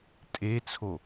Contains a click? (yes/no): no